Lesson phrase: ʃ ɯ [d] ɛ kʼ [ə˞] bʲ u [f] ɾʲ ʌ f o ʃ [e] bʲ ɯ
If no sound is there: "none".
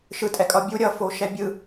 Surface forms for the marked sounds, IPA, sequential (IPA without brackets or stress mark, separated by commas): tʼ, ʌ, none, ɛ